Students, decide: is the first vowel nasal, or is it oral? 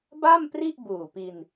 oral